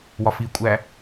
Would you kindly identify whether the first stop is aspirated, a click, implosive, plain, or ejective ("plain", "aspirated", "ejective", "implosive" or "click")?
ejective